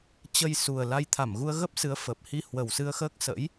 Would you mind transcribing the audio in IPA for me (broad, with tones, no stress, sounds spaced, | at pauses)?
t͡ɕ ə˧ j s u˨˩ ə̯ l a˧ j t̪ʰ a˧˩ m ɣ u˧ ə̯ ɣ ə˦˥ p̚ s ɨ˨˦ ə̯ f əː˨˩ p̚ h i˧ h w ə˨˩ w s ɨ˧ ə̯ x əː˦˥ k̚ s ə̰˧˥ j